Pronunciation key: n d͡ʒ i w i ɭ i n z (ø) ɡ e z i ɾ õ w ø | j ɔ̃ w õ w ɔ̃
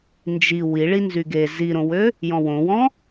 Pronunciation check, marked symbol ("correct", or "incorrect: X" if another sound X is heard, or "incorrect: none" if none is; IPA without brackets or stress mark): incorrect: y